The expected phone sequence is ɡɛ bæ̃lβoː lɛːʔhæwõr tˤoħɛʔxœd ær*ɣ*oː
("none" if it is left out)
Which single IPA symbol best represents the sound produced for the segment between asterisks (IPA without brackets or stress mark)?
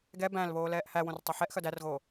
ɣ